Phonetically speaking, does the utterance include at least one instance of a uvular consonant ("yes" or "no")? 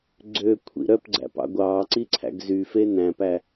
no